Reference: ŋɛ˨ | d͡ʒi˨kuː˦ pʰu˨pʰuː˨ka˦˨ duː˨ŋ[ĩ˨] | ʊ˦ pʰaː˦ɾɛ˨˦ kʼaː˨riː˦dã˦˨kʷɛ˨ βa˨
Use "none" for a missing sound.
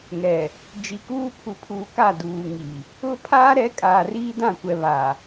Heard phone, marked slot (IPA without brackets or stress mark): i˨